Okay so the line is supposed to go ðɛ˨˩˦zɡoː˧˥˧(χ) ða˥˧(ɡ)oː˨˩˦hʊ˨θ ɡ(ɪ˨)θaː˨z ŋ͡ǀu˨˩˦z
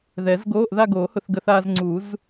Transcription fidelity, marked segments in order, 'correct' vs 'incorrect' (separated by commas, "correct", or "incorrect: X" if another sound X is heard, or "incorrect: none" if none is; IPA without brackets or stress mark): incorrect: ʔ, correct, incorrect: ə˨